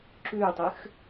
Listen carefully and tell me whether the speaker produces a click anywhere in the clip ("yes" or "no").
yes